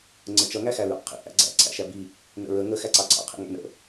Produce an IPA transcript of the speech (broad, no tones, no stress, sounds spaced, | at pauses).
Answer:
ŋ͡ǀ ə t͡ʃ ʌ ŋ æ x æ ɹ ɑ̰ qʰ ḭ ʔ æ̰ ɡ͡ǀ æ̰ ǀʰ æ̰ ʃ æ b i | n ə̰ ɹ ə ŋ ə x æ ǀ ɑ ǀʰ ɑ̰ qʰ ḭ ŋ æ̰ n ə̰